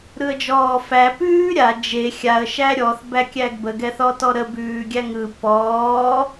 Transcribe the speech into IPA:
ɾɯə̯d͡ʒɔːfæ pʉːɾʲa d͡ʒe xʲaə̯ ʃæɾʲɔθ bækʲæɡbə ɡɛθɔtɔɾə bʉːɡʲæŋɯ pɔː

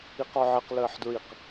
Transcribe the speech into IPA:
iqɔʕɘq ləːħdɹiq

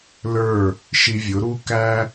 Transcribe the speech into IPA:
lə˞˦˨ | ʃi˧vʲʊ˨˦ɾu˦ kæ˦

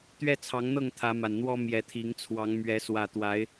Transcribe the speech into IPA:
t̪ɥɛ˦t͡sʰɑ˨˦ŋn̪ɤ˥˨ŋ t̪ʰä˨˦ma˨˩nn̪wɔ˦ mjɛ˨˦t̪ʰi˨˦ŋt͡sʰwɑ˨˦ŋ mɥɛ˨˦swä˨˩t̪wa˨˦ɪ̯

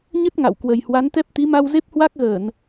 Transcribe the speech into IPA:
ɲə˦˥t̚ ŋa̰˧˨wkwə˨˩jhwa˨˦nt̪ɛ˦˥p̚ t̪i˨˦ma˧w ze˦˥p̚hwa˦˥k̚ɣəː˧˩˨n

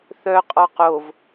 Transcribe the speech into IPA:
θœ qʼɔqov

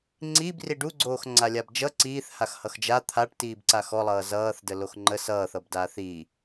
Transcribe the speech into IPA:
ŋ͡ǀib riɖuɡ͡ǀoːx ŋ͡ǀalʲabd͡ʒʌ ǀiːθhax hʌxd͡ʒa t̪ʰaʈtiːbǀa xɔlˠʌː zʌːθdə loxŋ͡ǃə sʌːθʌbdaːθ i

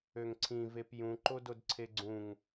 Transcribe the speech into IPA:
øŋǀʰĩ vepjũ ǃododǀʰeɡ͡ǀũŋ

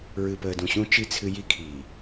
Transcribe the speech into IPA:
ɹɨ˨pəː˨dũ˨ɕũ˦ t͡ʃi˦˨t͡sʰɨ˦ ji˦kʰiː˨

